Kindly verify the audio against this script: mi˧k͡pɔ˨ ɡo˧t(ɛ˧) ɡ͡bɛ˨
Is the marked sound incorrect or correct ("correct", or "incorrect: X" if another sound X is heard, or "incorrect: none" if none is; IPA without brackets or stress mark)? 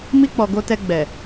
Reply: correct